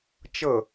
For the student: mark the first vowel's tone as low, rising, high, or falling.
falling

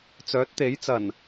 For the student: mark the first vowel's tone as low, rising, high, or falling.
rising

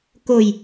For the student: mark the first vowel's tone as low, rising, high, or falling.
low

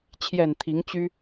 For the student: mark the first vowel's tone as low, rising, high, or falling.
low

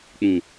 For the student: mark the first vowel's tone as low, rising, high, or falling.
low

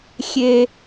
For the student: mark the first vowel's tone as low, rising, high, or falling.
high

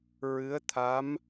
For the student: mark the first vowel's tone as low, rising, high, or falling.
rising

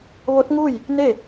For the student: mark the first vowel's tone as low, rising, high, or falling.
rising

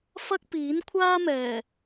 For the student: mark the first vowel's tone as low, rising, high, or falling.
high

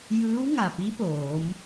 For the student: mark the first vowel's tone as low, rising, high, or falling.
rising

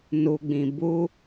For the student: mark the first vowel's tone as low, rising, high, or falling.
low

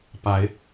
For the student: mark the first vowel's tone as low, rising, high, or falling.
rising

